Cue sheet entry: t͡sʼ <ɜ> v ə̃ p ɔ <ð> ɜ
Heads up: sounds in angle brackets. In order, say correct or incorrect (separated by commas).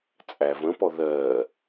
incorrect, correct